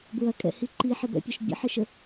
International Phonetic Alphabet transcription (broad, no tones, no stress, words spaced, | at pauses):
bɹɐkʼɛ̰hi ǃiħɪbɛ̰pʲɒʃ bʲə̰ħɪʃə